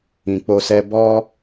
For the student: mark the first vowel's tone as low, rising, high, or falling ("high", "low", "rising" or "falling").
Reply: low